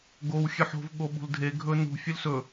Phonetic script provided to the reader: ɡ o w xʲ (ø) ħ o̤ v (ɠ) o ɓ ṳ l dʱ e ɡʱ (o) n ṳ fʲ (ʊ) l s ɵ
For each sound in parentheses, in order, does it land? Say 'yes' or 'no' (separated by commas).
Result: yes, yes, no, no